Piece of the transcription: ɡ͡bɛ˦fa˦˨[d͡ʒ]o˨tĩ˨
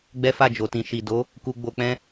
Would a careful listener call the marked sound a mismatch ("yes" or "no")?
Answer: no